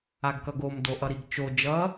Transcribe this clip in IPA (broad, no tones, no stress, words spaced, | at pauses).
aɡkʌɡom doʔʌɾiɡt͡ʃo d͡ʒʌ